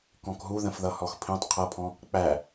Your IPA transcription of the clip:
k ɔ̃ k ɦ u ð ə̃ f ð ʌ h ɔ x pʰ ĩ tˤ qʰ ʌ pʰ ɔ̃ | k͡p æ

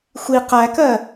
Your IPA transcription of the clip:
xʷ i q æ k ɜ

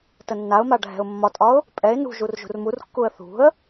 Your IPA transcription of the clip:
t ə nː a ʊ̯ m a ɖʱ ɛ̤ ʊ̯ mː ɒ tʼ ɒ ʊ̯ | pʼ ɛ ɪ̯ n ṳ ʒ u r ʒ ṳ r m u r kː u ə̯ θ ṳ ə̯

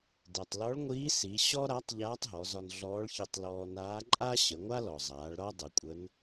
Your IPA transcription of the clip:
d ɛ˩ tˤ l ɔ˧˥ ɭ ŋʷ iː˧˥ s i˩˧ ɕ ɔ˥ ɾ a˧˥ tˤ ʎ aː˧˥ tˤ ɦ ɔ˩˧ z ɒ˧ n ɮ ɔː˧˥ ɭ ç i˧ tˤ l ɔː˧ n aː˧˥ ǃʼ a˥ ɕ ə˩˧ ŋʷ a˥ l ɔ˩ zˤ aː˩˧ ɭ ɾ ɒ˥ dˤ ə˩˧ kʷʼ ə˧˥ n

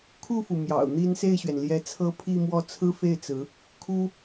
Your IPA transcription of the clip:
kʰ u˥˩ f u˩ m j ɑ̰˨˩ ʊ̯ n̪ i˥ n s e˥˩ ɪ̯ ɕ ɥ ɛ˩ n l j ɛ˧˥ t͡sʰ ɤ˥ pʰ i˥˧ m w ɔ˥˩ t͡sʰ ɹ̩˥ f e˥˩ ɪ̯ t͡s ɹ̩˧˥ | kʰ u˥

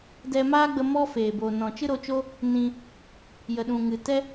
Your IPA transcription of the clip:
d ɛ˧ m aː˦ ɡ͡b ə˧ m ɔ˦ f eː˨ b o˨ n ɔ̃˨ t͡ʃ ɨ˦ ɾ o˧ t͡ʃ o˦ | n ĩ˧ | j ə˨ ɗ ũ˨ ŋ ɨ˨ t ɛ˦

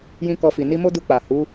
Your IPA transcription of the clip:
j ĩ˦ k ɔ˧ f i˨ n i˧ m o˦ d u˧ k͡p a˨ h u˨˦

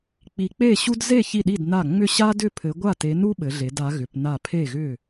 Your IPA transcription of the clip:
k͡p i˨˦ k͡p e˥˨ ɕ u˥ d z e˥˨ ç i˥˨ ɗ i˥˨ d n a˥˨ ŋ͡m ʏ˥˨ ɕ a˥ d ʏ˥˨ pʰ ɘ˨˦ ɡʷ a˥˨ t e˨˦ n u˥ ɓ ɘ˨˦ ɮ e˨˦ d a˨˦ ɣ ʏ˨˦ p n a˥˨ pʰ e˥˨ ɣ ʏ˥˨

